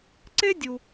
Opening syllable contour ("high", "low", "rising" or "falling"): high